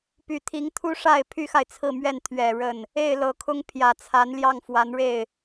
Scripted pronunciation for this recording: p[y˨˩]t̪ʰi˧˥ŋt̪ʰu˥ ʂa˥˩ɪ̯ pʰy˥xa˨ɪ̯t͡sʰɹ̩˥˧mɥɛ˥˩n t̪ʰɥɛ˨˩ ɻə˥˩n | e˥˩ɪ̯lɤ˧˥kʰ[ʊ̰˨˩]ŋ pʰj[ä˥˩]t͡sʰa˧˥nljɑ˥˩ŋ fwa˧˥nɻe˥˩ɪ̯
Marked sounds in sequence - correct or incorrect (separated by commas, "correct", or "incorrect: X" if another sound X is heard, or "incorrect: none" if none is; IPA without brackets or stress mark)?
correct, incorrect: ʊ˥, incorrect: ä˨˩